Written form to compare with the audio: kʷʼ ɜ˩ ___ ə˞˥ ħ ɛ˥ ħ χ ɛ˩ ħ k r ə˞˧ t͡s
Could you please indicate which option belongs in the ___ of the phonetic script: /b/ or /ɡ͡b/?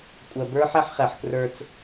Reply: b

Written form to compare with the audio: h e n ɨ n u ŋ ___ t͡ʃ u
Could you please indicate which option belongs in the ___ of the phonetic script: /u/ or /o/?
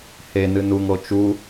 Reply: o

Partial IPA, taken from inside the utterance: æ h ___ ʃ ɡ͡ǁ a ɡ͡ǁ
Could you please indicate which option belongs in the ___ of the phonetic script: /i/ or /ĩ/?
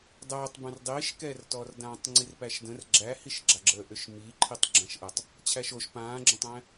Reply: i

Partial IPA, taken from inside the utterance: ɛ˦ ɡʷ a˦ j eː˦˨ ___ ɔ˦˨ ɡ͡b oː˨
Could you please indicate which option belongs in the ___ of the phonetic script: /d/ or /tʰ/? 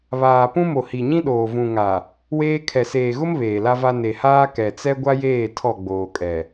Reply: tʰ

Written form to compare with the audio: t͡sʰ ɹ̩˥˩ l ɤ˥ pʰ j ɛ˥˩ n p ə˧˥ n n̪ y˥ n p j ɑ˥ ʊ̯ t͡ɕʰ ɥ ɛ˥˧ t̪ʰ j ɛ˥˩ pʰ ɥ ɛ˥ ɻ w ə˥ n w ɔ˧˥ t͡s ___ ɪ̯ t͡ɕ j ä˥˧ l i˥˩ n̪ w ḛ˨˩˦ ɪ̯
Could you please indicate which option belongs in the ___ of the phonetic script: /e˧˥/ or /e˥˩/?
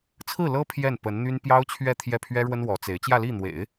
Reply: e˧˥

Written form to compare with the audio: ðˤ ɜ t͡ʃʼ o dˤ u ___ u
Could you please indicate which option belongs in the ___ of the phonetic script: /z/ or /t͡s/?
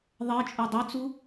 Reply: t͡s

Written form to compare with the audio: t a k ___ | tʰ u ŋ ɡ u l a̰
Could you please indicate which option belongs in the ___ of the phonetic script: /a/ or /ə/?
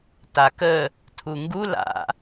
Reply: ə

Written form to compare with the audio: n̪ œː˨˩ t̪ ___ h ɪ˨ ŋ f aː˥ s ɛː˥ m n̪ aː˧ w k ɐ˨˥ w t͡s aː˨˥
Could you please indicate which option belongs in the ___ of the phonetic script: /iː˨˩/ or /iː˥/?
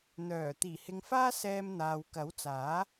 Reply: iː˨˩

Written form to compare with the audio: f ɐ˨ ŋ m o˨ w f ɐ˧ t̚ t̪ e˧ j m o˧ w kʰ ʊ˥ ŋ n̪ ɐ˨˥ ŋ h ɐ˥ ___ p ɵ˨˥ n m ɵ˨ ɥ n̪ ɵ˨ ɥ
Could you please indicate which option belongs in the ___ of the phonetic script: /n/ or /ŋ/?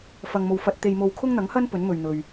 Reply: n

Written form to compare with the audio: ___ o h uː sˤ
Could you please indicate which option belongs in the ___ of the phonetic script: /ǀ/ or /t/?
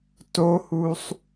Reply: t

